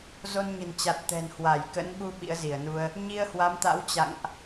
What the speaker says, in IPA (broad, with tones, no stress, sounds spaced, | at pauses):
z o˧ n ɲ ə̤˨˩ n t͡ɕ a˨˩ t̚ t̪ ɛ̤˨˩ n h w a˧˩ j k ə̰˧˥ n ɓ u˧ ɓ ḭ˧˥ ə̯ z i˧˩ ə̯ n u˧ ə̯ | ɲ i˧ ə̯ h w a˨˦ m t̪ a̰˧˥ w t͡ɕ a̰˧˨ ŋ ʔ